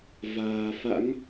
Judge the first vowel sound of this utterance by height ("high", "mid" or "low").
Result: low